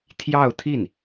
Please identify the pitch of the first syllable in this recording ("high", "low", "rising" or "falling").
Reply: falling